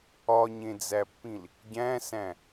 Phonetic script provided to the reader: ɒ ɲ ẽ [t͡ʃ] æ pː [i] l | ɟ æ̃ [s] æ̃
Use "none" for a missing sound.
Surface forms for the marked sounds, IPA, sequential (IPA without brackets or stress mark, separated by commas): d͡z, ĩ, s